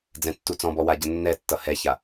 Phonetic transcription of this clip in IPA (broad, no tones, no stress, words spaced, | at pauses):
d͡zɛ̃tːut͡sɔ̃bɔ waɟənːɛtːʌ hɛça